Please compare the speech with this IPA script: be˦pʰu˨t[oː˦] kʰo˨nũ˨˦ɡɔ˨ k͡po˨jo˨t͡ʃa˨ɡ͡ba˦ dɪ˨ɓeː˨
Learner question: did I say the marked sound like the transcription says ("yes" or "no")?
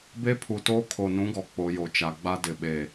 yes